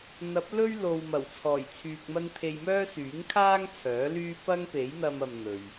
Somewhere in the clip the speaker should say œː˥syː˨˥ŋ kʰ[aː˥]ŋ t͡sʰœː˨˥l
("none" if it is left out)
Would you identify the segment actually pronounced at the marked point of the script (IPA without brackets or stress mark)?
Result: aː˥